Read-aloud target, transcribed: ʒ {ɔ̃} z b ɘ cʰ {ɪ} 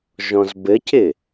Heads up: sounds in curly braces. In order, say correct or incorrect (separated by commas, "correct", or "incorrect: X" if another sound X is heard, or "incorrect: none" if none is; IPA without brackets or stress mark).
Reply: correct, correct